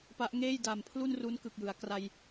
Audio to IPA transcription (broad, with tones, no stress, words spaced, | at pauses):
pa˦˥ʔŋeː˥˩j daː˨˩mpʰlu˥˩n ru˦˥n kɯ˨˩k̚jɯ˩˦a̯ kra˧j